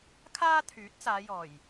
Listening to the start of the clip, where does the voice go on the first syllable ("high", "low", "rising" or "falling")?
high